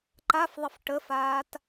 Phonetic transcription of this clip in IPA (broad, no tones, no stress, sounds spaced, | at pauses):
ǃ a f ðˤ ə f ʈ ə f aː t